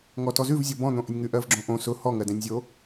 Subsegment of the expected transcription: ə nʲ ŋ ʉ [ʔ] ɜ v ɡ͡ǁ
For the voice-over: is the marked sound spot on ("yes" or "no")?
yes